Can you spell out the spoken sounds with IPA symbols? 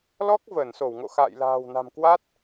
l ɔ˦˥ k̚ v əː˧˩ n s o˧˩ w ŋ o̰˧˨ x a̰ː˧˨ j l a̤ː˨˩ w n a̤˨˩ m k w a˦˥ t̚

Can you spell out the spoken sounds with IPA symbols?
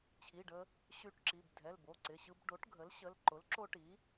t͡ɕʰ i˩˧˩ ɖ ə˧ | ɕ y˧ ʈ ǁ i˩˧˩ b dʱ ɛ˩˧˩ l b o˩˧˩ ǀ ɪ˩˧˩ ɕ ɯ˧ b ɖ o˩˥ ʈ ɡʱ ə˩˥ l ɕ ə˩˧˩ l ǃ ʊ˩˥ l ǁ o˧ ʈ i˩˥

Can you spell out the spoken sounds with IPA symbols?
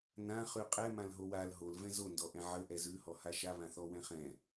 n ã χ ʉ qʼ ɛ m ã l ɦ o w a l ɦ o l v ɛ̃ z o n d ɔ ʔ ɛ̃ ʕ ə ʔ ɛ z ʉ h ɔ h a ʃ a β ã θ ɔ w ɛ̃ χ ɛ̃

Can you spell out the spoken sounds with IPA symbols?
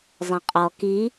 zˤ ẽ qʼ ɔ k i

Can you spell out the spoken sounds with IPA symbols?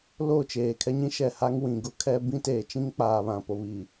l o˦˨ t͡ʃ eː˨ kʰ ɛ˦ ɲ ĩ˦ ʃ ɛ˨ h a˦ ŋ w ĩ˨ ɡ ʊ˦ kʰ ɛ˦ b ĩ˦ t eː˨ t͡ʃ ĩ˦ ŋ k͡p aː˨ β ã˨ p o˨ β i˨

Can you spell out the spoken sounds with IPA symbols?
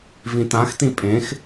v ĩ t ã x t ĩ pʼ ẽ x

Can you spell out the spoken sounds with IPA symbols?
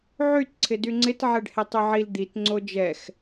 ʕ y t ǀʰ ɪ d y ŋ͡ǀ ɪ t ʕ ɛ ɖ h e tˤ y ʕ i l d̪ i t ŋ͡ǀ o d͡ʒ ɛ x

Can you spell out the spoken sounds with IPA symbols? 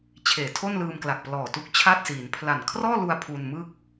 t͡ɕʰ eː˨˩ tʰ o˥˩ n l ɯː˧ m k l a˨˩ k̚ p l ɔː˨˩ t u˦˥ k̚ t͡ɕʰ a˥˩ t̚ s iː˩˦ n pʰ l a˨˩ n kʰ r ɔː˥˩ l u˧ a̯ pʰ u˧ n m ɯ˥˩ k̚

